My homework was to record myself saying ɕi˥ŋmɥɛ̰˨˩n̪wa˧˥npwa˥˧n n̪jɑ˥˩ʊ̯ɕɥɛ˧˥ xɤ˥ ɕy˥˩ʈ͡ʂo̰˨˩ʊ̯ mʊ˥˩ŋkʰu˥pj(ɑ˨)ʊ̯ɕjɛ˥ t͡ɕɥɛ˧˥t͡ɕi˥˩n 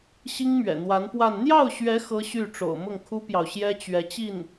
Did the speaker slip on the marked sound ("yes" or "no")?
no